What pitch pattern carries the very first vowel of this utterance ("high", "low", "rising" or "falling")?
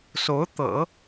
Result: rising